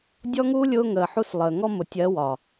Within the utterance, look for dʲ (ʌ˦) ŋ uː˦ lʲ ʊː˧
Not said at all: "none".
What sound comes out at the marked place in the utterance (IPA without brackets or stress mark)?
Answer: ɔ˦